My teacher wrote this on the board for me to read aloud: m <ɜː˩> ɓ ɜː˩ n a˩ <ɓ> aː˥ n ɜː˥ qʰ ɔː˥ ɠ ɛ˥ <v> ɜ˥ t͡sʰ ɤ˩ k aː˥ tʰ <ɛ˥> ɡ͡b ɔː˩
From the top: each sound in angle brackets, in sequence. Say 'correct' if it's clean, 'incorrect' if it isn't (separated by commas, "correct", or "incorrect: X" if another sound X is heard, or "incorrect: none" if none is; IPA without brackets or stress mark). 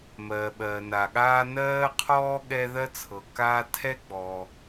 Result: correct, incorrect: ɠ, incorrect: ð, correct